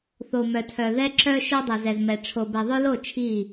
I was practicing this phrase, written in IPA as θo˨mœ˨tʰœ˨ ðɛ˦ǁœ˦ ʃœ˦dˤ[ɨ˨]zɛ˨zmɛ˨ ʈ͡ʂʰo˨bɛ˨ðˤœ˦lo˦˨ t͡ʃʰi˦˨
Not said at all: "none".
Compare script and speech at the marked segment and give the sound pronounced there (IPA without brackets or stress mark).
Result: ɛ˨